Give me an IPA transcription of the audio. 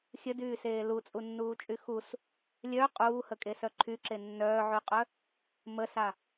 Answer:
xʲ ə d yː s eː l u t͡sʼ u nː uː t͡ʃʼ y x u s | lʲ œ qʼ uː h ə kʼ e s œ ǃʰ y ǁ e nː œː ʕ y qʼ œ | m ə s a

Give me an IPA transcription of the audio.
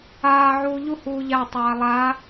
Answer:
aː ʕ uː ʎ u h uː ʎ a tˤ aː lˠ a

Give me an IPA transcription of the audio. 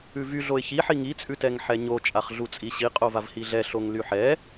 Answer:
ʉ v y ɮ o ɪ̯ ç i ħ i ŋ i t͡sʼ ʉ t ɛ ŋ ħ ɛ ɲ o t͡ʃʼ a χ ɮ u t͡sʼ i ɕ i qʼ o v a v h i ɮ ɛ ɬ o ŋ l y ħ ɛ

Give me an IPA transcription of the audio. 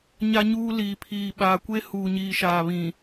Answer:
ɲ a˦ ɲ uː˦ l iː˨ pʰ iː˨ ɓ aː˨ kʷ e˦ h uː˨ ɲ iː˨ ʃ aː˨ β ĩ˨

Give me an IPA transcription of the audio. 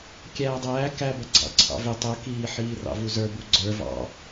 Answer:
kʲ æː dˤ æː k æ b ʌ ɡ͡ǀ ɑ̰ ǀʰ ɑ̰ v ɪ tˤ ʊ k iː ħ iː r ɑ̰ v u z ə˞ b u ɡ͡ǀ ə˞ v ɑ̰

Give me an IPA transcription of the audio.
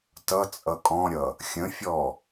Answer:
t ʌ t͡sʼ ʌ kʼ ɔ̃ ɾʲ ʌ | xʲ ə̃ fʲ ɔ

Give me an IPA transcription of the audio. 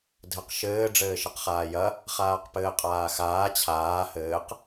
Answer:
dʱ ɘ q ʃ ɘː ɖ͡ʐ ɘː ʃ ɐ q χ aː j ɐ | χ aː q p ɘː qʼ aː x aː t͡ɕʰ aː h ɘː q

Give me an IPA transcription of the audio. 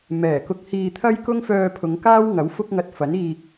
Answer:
m ɛː˨˩ k ʊ˧ k̚ h iː˧ t̪ʰ ɐ˥ j k ʊ˥ ŋ f œː˧ pʰ ʊ˨˧ ŋ k aː˥ w ŋ ɐ˨˥ w f ʊ˥ k̚ ŋ ɐ˧ t̚ f ɐ˨˥ n iː˨ k̚

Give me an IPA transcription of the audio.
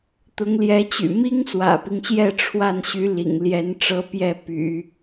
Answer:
t̪ ʊ˧˥ ŋ l j ɛ˧˥ t͡ɕ y̰˨˩ m i˥ ŋ s w ä̰˨˩ p i˦ ŋ ɕ j ɛ˥˧ ʈ͡ʂʰ w a˥˩ n ɕ y˧˥ l ḭ˨˩ ŋ l j ɛ˧˥ n ʈ͡ʂ ɤ˧˥ p j ɛ˥˩ p y̰˨˩˦

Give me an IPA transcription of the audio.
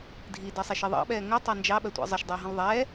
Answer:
dʱ i d ɜ sˤ ɛ ʃ i ðˤ ɑ̰ ɓ ɛː ŋ ɜ tˤ ɑ n d͡ʒ ɑ ɓ ɜ tʷ ɑ̰ zˤ ə ʃ dˤ əː ɦ ə̃ l ðˤ ɛː

